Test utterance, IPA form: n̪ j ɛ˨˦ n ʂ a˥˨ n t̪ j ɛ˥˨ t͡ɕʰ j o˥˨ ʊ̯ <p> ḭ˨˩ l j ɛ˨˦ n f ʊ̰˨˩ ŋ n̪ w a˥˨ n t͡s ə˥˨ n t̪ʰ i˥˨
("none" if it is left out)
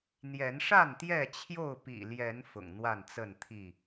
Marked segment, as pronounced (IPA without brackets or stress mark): p